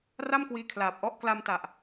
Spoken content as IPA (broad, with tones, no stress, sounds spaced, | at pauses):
r a˥˩ m k w iː˧ kʰ l aː˨˩ p̚ ʔ ɔ˦˥ ʔ k l a˧ m t a˨˩ ʔ